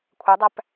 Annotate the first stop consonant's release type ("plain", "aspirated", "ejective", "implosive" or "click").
aspirated